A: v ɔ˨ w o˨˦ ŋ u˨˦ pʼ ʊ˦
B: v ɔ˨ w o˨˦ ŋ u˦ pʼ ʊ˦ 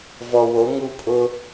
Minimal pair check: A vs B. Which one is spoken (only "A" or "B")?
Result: B